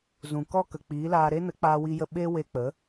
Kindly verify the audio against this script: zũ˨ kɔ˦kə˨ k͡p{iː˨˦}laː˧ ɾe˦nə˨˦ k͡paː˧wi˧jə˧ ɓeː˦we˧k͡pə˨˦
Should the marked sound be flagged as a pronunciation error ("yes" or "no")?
no